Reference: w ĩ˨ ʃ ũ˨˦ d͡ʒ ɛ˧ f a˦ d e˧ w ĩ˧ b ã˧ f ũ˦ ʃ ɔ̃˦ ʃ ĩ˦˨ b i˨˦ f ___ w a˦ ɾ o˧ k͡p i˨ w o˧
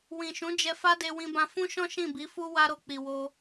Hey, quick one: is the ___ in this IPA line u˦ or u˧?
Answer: u˦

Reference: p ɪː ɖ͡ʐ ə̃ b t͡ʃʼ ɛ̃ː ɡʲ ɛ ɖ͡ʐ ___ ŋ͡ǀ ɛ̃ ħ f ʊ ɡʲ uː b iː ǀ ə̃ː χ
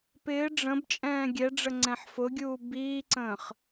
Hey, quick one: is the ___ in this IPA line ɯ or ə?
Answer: ə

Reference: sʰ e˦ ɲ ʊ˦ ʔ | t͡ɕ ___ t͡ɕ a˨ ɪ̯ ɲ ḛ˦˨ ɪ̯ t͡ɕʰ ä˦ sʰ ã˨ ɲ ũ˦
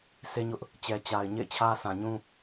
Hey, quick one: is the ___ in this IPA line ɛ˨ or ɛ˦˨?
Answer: ɛ˨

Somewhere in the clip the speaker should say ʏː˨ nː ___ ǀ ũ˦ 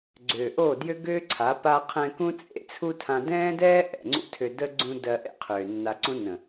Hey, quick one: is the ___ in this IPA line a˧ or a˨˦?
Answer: a˧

